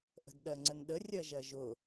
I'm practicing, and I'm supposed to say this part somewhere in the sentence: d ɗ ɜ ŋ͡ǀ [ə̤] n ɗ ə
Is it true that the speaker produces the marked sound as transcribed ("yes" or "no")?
no